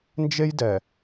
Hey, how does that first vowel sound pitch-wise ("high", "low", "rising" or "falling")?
high